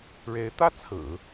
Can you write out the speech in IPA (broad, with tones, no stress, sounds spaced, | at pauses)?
ɻ e˧˥ ɪ̯ t̪ ä˥˩ t͡sʰ ɹ̩˨˩˦